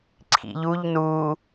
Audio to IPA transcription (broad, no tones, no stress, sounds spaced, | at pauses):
ǀʰ ḭ ʎ u ʎ n uː